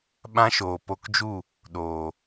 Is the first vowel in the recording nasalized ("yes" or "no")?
yes